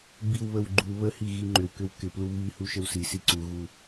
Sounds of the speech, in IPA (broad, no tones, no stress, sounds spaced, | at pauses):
b i w β ə w ɡ͡ǃ u β ə h i ɣ i ŋ͡ǃ ʏ w k ʏ w k ɪ p l u β i h u ʃ ə w s i s i ǀ u ɣ u